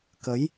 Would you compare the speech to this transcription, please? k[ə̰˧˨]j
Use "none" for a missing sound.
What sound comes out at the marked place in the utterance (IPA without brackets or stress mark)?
ə˨˦